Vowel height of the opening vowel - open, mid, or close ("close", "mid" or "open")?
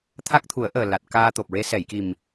open